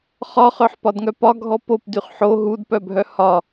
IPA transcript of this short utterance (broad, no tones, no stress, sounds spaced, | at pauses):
χ ɒ χ œ ħ p ɒ d ŋ œ p ɒ ɡʱ ɔ p o p d y χ ħ o ɦ u d p œ bʱ œ h ɒ